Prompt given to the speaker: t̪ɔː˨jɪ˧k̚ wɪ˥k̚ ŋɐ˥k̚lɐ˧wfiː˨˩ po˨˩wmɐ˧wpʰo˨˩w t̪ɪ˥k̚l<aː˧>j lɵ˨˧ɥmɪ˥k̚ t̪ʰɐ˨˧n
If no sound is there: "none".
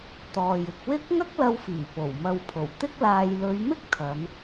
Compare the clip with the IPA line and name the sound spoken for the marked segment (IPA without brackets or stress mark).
aː˧